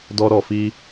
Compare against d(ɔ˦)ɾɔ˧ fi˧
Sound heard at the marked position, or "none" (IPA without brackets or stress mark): ɔ˦